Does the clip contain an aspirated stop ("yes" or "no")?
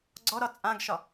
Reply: no